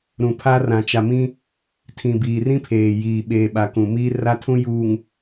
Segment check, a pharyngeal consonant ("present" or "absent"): absent